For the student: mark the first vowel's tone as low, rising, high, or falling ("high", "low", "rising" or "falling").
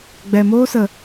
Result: low